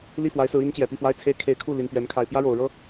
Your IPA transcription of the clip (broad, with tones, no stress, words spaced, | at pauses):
li˥˩fwa˧˥ɪ̯sɹ̩˧˥ i˧˥n t͡ɕjɛ˨˩pi˥˩fwa˥ɪ̯t͡sʰe˥ɪ̯ kʰe˧˥ɪ̯kʰu˥˩ li˨˩npɥɛ˧˥n kʰa˨˩ɪ̯pjä˥ɻo˨˩ʊ̯ ɻɤ˥